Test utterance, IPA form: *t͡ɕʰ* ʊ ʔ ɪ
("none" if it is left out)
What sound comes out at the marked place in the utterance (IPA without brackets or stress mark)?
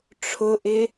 ʈ͡ʂʰ